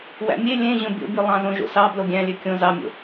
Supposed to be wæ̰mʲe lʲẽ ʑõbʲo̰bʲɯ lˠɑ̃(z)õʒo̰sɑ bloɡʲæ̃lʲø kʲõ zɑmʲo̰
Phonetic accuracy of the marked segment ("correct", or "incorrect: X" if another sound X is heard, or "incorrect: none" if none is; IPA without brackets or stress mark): correct